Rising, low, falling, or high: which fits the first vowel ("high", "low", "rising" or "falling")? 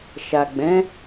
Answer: low